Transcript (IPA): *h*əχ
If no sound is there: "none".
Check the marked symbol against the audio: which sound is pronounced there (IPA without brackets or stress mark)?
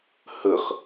h